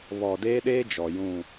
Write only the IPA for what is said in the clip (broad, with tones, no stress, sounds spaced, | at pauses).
β ɔ˨ d eː˦ ɗ eː˦ d͡ʒ ɔ˨ j ũ˦˨